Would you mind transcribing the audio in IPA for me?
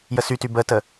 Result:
j ə s y t y b ə t ə

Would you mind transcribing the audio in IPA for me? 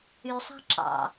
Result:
y sˤ ɑ̤ ǁ ɑ̰

